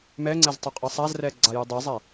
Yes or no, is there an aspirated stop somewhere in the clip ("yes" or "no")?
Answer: no